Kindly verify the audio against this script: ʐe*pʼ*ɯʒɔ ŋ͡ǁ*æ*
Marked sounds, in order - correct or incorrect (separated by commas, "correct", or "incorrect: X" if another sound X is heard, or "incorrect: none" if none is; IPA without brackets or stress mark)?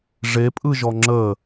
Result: correct, incorrect: ə